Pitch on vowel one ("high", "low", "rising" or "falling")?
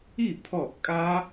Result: falling